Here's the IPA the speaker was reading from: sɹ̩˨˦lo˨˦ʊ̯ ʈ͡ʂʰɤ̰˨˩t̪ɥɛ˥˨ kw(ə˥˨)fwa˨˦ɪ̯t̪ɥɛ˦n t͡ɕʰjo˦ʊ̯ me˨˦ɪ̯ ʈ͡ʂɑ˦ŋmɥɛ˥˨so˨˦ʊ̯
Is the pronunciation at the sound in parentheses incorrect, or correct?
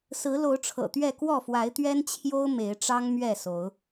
incorrect